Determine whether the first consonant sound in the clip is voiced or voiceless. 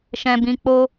voiceless